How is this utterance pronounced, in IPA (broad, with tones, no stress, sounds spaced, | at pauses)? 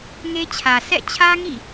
ŋ e˦ t͡ɕʰ ä˨ sʰ ɛ̰˦˨ t͡ɕʰ ä˦ ŋ ḭ˦˨